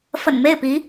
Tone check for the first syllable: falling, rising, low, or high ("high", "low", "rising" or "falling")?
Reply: low